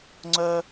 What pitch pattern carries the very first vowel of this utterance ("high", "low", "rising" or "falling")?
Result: low